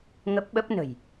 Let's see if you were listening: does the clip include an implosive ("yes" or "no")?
yes